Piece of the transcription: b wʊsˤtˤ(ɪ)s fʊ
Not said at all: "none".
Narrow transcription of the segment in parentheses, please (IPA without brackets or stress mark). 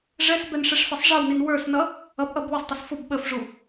ɪ